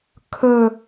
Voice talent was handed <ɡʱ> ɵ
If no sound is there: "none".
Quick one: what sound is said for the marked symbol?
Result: kʰ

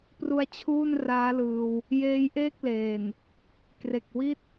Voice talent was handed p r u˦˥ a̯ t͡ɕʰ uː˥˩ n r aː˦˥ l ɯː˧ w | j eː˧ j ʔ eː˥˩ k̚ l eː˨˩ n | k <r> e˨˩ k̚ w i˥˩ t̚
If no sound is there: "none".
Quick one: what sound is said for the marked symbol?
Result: r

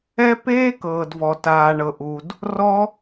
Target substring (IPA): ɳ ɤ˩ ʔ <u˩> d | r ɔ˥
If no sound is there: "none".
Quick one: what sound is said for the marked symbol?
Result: u˩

